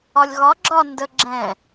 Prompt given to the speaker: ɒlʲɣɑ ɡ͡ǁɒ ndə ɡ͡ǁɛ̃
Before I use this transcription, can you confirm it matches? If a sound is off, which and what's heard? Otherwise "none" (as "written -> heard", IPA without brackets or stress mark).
ɑ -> ɒ